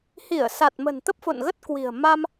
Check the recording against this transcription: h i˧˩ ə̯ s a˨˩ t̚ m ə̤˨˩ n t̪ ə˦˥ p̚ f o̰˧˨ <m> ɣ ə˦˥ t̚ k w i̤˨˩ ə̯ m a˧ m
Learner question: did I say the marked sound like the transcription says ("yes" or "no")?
no